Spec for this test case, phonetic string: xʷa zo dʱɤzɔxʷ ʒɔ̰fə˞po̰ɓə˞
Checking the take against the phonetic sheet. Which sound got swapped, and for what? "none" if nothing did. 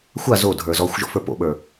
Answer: ɤ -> ə˞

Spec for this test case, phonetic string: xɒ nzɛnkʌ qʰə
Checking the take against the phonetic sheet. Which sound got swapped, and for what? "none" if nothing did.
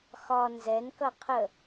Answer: none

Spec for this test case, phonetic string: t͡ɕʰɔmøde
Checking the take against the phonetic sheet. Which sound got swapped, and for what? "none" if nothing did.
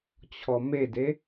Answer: ø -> e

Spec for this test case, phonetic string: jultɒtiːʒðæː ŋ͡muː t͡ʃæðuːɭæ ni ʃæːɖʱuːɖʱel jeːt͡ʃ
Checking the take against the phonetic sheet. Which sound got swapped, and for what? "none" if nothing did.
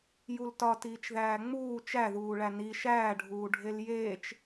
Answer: ʒ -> t͡ʃ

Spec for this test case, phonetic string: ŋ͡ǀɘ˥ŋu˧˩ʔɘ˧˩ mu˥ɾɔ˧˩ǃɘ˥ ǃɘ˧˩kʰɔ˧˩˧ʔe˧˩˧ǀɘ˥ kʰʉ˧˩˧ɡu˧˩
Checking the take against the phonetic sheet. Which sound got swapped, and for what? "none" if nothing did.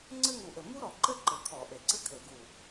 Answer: ʉ˧˩˧ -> ɘ˧˩˧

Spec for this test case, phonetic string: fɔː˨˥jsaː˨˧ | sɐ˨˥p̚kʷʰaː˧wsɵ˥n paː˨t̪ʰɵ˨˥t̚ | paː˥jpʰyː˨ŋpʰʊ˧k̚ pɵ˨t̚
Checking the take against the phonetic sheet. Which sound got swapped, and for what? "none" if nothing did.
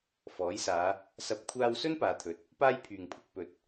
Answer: none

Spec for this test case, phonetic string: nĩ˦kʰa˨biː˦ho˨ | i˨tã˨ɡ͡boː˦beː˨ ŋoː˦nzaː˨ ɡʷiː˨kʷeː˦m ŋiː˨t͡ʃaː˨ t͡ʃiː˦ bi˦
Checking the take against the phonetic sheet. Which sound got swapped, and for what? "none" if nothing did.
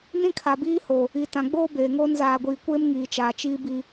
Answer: none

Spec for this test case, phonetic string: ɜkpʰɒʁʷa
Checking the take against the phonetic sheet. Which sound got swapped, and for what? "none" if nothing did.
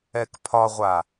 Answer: ɜ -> ɛ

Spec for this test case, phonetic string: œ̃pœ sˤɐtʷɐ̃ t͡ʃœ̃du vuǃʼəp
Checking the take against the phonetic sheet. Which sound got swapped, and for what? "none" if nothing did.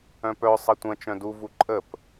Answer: none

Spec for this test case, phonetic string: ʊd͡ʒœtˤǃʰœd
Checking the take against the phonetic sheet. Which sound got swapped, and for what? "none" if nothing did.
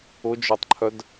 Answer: none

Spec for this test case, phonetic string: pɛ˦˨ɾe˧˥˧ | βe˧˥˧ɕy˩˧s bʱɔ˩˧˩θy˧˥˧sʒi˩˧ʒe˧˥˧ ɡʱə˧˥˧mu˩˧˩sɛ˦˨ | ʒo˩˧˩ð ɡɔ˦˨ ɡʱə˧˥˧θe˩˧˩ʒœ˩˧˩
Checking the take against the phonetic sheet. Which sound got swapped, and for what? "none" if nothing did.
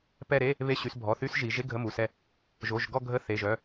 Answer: ð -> ʒ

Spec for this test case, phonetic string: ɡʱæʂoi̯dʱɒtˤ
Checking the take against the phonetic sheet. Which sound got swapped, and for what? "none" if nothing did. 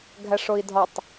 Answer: none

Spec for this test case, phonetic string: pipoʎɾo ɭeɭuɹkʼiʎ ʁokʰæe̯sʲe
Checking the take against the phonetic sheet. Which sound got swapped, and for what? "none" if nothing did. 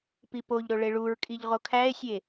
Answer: none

